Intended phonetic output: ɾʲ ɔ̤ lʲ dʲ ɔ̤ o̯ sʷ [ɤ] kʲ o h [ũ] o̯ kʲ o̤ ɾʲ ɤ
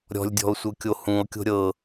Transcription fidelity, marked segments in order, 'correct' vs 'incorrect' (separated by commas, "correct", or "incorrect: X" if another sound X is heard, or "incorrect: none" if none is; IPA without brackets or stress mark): correct, correct